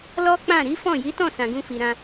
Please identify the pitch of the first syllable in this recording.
high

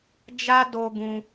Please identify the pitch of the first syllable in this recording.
high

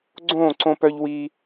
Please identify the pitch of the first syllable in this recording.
falling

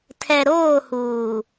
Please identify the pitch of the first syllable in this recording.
low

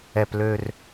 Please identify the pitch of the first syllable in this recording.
low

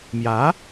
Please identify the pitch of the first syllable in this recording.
rising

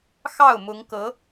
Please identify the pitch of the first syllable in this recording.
falling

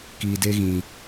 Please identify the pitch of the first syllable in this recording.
low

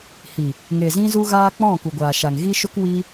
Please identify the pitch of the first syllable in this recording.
low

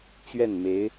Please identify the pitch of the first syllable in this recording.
falling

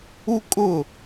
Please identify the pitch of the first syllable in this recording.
high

